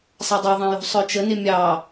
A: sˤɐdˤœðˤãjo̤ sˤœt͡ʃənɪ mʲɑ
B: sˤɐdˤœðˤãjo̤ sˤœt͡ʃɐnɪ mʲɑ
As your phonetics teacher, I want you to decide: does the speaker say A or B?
A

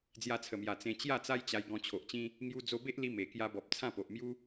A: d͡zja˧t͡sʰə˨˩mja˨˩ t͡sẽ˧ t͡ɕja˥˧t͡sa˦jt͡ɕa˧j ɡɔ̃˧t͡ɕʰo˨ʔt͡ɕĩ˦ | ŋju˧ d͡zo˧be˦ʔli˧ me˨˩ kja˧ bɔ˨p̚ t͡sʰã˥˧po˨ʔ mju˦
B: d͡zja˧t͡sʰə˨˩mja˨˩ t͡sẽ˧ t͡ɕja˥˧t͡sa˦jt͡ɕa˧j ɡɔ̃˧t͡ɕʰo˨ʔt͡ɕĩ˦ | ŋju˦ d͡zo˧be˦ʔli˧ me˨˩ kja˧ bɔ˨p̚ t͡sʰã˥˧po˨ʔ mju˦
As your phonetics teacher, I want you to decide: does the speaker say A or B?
A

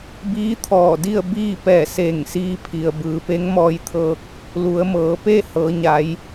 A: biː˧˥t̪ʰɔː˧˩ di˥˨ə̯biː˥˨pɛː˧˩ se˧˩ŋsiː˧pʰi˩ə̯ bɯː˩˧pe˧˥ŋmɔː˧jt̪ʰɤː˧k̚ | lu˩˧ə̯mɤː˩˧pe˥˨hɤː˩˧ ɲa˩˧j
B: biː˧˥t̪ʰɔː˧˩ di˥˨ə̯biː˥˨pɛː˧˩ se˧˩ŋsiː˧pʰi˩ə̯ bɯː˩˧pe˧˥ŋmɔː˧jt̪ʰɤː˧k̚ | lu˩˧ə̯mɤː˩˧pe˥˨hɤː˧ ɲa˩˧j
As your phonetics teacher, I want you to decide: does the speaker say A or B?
A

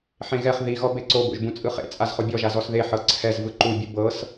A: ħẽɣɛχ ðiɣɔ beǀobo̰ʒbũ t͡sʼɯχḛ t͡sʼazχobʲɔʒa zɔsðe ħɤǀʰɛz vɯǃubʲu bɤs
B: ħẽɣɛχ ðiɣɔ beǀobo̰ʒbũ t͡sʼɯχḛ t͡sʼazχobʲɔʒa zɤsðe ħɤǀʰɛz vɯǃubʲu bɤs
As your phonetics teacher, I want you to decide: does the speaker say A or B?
A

